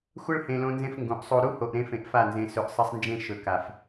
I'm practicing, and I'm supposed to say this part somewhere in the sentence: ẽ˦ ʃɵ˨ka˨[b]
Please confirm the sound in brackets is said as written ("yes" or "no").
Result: no